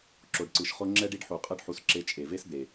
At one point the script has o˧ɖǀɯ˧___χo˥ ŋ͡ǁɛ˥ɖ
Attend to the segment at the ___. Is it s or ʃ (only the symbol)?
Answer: ʃ